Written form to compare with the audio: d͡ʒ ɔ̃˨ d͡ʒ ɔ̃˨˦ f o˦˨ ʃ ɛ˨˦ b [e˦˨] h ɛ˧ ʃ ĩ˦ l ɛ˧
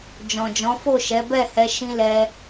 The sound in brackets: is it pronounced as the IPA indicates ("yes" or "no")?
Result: no